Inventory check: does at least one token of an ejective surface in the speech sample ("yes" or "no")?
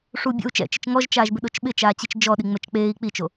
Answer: no